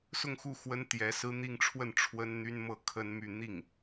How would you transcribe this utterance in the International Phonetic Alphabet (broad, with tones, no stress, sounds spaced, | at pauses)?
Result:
s ʊ˥˧ ŋ x u˥˩ x w ə˥ n t̪ j ɛ˧˥ s ɹ̩˥ n̪ i˥˧ ŋ ʈ͡ʂʰ w ə˥˩ n ʈ͡ʂʰ w ə˥ n n̪ y˥ n m ɤ˥˩ kʰ ə˥ n m y˥˧ n̪ i˥˩ ŋ